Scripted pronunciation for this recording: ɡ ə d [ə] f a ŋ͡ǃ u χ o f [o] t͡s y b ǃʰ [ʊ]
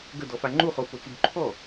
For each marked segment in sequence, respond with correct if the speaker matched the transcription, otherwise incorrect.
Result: incorrect, correct, incorrect

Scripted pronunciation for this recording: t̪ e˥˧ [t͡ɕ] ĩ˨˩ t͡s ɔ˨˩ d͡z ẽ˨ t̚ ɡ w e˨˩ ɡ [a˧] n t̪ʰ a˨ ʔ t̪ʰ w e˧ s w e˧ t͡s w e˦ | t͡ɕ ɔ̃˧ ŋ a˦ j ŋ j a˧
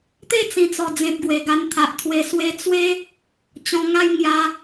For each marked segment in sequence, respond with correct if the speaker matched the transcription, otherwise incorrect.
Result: incorrect, correct

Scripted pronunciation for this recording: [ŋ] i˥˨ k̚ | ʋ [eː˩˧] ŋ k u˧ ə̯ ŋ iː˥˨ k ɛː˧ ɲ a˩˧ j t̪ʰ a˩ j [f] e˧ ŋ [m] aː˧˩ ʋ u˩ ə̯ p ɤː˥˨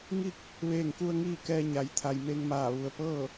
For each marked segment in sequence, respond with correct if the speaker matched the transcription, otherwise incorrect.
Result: correct, incorrect, incorrect, correct

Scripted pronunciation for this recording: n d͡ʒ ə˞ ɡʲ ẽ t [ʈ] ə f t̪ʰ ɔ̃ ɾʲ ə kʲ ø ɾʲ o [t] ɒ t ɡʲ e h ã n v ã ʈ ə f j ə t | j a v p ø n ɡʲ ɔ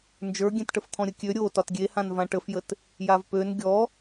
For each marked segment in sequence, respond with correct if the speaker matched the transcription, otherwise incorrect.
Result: correct, correct

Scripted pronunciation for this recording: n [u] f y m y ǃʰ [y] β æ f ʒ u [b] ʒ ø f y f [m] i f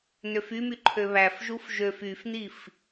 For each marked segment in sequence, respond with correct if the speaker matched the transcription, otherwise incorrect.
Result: incorrect, incorrect, incorrect, incorrect

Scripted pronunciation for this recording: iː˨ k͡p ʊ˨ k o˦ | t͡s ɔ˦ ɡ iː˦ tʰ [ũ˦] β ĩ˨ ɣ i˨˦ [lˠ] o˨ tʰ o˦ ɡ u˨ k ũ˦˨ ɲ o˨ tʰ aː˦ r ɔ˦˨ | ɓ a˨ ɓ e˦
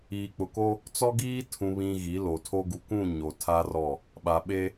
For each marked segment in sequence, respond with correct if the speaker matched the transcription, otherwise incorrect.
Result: incorrect, incorrect

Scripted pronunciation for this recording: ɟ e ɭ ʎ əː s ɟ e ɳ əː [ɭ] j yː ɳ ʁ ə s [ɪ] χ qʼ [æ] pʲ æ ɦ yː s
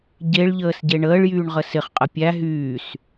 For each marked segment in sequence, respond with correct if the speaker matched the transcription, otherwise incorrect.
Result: correct, correct, incorrect

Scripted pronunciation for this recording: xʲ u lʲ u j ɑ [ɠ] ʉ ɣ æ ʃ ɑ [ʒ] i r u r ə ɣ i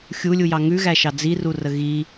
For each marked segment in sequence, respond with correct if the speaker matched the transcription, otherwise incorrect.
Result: incorrect, incorrect

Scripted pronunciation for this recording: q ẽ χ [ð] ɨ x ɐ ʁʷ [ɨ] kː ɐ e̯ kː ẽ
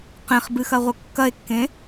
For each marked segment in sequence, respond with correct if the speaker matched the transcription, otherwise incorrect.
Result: incorrect, incorrect

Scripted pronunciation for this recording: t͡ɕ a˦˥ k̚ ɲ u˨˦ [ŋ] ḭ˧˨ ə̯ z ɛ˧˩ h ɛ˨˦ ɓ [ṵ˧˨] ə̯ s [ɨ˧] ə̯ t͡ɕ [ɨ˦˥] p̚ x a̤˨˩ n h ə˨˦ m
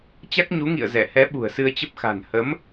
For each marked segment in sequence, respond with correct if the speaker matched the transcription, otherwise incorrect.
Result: correct, incorrect, correct, incorrect

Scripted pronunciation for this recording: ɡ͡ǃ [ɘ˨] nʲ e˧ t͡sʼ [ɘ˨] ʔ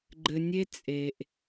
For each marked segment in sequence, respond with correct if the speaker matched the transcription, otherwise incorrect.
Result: correct, incorrect

